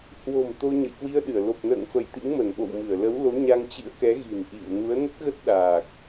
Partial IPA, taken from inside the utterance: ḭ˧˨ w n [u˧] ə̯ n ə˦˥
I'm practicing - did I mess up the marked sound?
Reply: yes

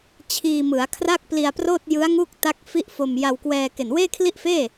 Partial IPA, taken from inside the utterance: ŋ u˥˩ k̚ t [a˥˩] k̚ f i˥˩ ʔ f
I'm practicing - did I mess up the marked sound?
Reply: yes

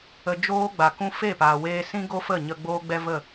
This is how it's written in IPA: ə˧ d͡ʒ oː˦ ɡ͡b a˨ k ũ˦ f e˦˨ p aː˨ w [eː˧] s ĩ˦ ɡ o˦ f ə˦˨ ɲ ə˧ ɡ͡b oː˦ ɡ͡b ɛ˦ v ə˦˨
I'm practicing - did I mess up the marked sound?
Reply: no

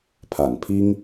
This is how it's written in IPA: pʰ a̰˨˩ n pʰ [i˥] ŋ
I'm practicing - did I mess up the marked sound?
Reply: no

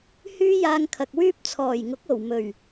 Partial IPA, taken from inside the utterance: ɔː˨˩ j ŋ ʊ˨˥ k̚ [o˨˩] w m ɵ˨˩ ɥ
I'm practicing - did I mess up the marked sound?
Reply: no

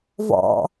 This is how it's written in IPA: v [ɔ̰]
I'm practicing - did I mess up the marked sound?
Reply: no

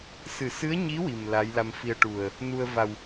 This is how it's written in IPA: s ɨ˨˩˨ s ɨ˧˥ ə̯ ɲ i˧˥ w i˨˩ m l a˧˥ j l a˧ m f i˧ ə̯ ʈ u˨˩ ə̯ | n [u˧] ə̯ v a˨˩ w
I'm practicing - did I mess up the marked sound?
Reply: no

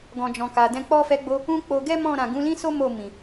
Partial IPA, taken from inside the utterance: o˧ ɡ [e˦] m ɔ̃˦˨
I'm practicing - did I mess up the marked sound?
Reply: yes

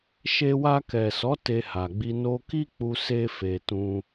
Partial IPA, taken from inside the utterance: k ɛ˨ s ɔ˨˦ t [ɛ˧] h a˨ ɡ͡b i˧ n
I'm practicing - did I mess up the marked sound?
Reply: yes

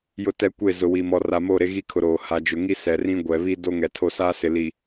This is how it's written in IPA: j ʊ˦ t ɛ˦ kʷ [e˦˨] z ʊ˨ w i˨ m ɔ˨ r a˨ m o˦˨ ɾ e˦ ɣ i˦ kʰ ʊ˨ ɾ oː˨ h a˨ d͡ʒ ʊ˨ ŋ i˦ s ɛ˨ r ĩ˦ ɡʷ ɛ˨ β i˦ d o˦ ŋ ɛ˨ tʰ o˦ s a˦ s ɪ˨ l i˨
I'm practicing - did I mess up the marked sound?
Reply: no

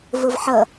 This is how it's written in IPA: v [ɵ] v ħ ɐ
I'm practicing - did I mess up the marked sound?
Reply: yes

